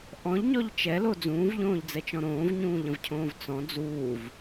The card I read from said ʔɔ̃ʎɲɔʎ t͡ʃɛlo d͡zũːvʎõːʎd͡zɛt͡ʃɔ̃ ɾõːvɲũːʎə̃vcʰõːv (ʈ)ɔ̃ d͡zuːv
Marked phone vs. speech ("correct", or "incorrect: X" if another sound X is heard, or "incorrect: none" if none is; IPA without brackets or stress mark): incorrect: t͡s